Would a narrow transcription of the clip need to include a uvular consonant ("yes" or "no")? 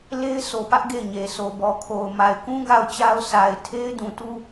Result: no